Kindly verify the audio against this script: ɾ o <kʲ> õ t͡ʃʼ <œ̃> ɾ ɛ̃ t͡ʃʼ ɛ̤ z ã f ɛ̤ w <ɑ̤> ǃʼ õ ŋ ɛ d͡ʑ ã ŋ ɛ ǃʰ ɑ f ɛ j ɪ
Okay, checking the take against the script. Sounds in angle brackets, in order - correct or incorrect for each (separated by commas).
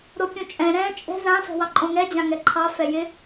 correct, incorrect, incorrect